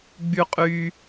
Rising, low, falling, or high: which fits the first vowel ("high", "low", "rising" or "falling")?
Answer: high